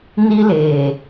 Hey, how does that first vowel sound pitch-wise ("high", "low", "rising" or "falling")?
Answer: high